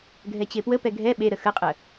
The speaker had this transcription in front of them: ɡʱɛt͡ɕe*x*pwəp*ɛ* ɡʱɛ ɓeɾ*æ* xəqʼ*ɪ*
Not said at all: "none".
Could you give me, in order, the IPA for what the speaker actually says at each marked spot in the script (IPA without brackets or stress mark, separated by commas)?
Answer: none, ɛ, ə, ə